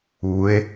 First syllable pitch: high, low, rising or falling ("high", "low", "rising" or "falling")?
rising